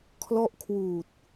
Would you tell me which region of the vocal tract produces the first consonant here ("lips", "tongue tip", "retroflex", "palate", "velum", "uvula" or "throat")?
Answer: velum